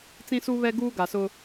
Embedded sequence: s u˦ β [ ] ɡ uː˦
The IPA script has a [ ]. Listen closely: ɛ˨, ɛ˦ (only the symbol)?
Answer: ɛ˦